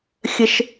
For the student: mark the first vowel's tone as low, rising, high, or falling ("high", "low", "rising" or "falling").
low